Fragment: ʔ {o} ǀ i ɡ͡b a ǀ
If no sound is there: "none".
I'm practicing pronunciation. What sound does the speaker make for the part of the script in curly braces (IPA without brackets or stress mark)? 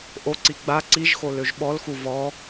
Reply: o